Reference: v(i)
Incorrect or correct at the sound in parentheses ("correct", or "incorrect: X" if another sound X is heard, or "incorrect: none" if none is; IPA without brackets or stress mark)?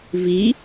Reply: correct